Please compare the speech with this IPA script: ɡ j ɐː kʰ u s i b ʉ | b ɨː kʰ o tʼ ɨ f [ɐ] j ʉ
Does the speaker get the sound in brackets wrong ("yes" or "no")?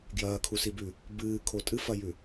no